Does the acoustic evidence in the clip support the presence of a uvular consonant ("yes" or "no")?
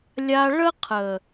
yes